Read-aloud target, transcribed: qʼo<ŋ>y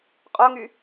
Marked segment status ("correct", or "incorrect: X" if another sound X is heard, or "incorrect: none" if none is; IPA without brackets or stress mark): correct